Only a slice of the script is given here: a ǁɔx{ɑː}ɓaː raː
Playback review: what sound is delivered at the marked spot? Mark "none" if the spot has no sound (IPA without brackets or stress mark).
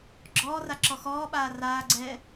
ɔː